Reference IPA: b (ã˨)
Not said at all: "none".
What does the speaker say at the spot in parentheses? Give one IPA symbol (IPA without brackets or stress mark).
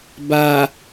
a˨